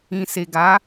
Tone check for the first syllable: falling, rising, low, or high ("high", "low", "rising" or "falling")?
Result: low